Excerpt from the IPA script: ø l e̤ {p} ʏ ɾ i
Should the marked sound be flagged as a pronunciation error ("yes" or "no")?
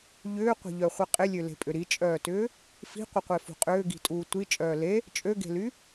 yes